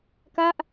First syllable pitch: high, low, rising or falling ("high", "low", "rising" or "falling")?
falling